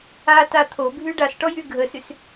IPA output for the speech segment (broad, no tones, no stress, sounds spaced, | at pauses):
a t a t̪ʰ o bʱ y ɖ a s ʈ ɔ j y ɡʱ ə s y s